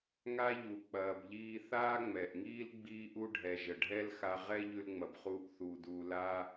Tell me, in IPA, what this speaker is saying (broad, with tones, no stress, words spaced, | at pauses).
ŋa˥ʎu˩k͡pɐː˩bʎiː˧ θaː˥ŋ͡mɛ˩ʔŋiː˥l ɡ͡biː˧ʔu˧ɖʱɛ˩ ʒə˩ɖʱɛ˥lxa˧ ʁɛ˥ ʎʉ˧lŋ͡mɐ˩bχuː˧ʔ θuː˩duː˩ laː˧